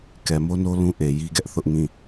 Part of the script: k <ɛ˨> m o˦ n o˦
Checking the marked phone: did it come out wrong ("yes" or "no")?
no